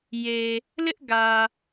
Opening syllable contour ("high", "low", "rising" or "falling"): low